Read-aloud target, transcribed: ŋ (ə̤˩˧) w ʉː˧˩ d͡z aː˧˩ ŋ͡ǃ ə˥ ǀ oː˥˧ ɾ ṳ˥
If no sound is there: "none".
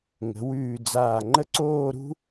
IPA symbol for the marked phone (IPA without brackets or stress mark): ə̤˩˧